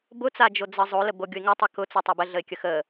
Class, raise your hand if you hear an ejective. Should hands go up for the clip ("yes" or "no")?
no